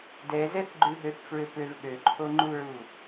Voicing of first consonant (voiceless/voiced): voiced